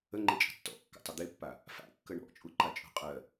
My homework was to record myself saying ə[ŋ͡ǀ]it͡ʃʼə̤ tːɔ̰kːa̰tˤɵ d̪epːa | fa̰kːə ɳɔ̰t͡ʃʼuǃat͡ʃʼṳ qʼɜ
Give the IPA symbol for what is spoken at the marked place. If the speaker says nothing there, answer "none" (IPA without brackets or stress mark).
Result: ŋ͡ǃ